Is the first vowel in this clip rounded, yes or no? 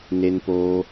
no